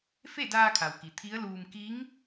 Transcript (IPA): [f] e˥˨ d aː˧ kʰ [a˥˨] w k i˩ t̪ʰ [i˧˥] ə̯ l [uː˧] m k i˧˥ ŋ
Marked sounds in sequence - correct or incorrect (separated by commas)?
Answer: correct, incorrect, correct, correct